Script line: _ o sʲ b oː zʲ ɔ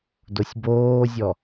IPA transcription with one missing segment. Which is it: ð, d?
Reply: d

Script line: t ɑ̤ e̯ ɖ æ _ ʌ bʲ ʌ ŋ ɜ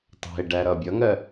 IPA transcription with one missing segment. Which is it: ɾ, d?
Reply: ɾ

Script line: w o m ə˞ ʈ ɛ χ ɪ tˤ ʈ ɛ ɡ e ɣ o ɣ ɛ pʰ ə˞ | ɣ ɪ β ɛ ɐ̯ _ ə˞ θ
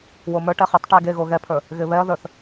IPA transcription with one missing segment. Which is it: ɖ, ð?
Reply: ð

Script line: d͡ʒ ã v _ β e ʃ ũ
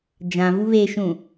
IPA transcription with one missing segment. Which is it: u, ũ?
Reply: u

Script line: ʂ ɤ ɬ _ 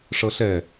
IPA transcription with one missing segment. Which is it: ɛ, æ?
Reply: ɛ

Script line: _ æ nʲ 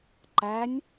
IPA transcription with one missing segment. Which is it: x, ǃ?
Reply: ǃ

